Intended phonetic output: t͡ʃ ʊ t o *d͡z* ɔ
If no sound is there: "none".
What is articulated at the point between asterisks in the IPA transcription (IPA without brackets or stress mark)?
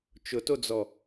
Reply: d͡z